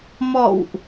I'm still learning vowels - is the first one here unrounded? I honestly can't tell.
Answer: no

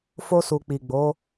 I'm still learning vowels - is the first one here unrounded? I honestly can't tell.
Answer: no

